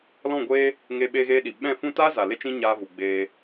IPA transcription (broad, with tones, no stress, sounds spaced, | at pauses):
l ɔ̃˦˨ ɡʷ eː˦ | ŋ eː˧ ɓ eː˧ ɣ eː˧ ɗ i˨ ɓ ɛ̃˦˨ f ũ˦ t aː˦ z a˨ l e˦ t͡ʃ ĩ˦ ɲ aː˧ v u˨ ɡ͡b eː˧